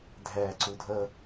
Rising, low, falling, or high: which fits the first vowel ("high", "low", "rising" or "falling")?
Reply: low